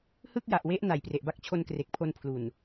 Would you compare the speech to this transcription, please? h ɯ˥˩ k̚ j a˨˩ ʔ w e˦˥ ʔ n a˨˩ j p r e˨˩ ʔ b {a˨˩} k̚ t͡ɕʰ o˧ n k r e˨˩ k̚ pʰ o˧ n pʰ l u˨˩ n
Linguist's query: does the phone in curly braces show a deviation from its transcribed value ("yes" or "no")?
yes